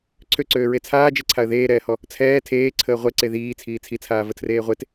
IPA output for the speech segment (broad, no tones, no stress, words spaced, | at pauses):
ǀʰøǀøːɹe t͡sʰaːd͡ʒeǀʰaə̯ ðeːɾɛːhɔ | t͡sʰɛː tʰeːǀʰəː ʁʷɛǀe ðiː t͡sʰiːt͡sʰit͡sʰaː vətʰreːʁʷet